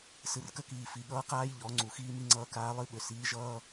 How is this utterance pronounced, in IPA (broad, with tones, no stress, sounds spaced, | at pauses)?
s ɨ˨ r k ə˦ k iː˨ f i˨ ɠ ʌː˦ q aː˦ j ʎ ɔ˨˦ ŋ͡ǀ u˨ x iː˦ m i˦ ŋ͡ǀ ʌː˦ k aː˦ lˠ ɨ˦ ɓ ʏ˨ s iː˨˦ ʒ ʌː˦